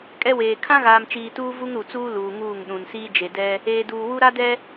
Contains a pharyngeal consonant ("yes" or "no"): no